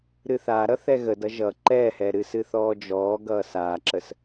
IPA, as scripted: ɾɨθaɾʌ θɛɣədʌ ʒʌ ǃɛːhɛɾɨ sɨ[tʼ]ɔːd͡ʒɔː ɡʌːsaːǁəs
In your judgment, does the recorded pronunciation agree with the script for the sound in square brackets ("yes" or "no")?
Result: no